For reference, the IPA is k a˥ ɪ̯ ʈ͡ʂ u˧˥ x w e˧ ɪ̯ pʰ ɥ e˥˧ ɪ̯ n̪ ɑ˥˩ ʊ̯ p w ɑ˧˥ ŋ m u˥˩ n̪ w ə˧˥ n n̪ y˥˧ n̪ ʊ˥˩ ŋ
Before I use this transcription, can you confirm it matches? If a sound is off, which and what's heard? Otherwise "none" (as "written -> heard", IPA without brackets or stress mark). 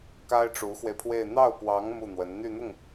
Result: ɥ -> w